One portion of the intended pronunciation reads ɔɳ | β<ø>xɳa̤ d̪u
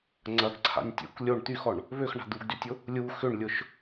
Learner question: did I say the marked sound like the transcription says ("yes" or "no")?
yes